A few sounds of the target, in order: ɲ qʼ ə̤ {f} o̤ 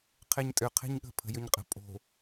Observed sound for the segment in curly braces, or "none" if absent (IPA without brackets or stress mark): pʼ